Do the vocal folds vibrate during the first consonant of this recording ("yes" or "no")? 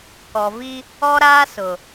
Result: no